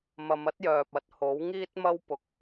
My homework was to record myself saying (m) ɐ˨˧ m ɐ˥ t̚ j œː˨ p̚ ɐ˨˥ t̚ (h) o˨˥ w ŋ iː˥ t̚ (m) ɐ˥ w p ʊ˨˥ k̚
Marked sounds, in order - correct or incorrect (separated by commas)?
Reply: correct, correct, correct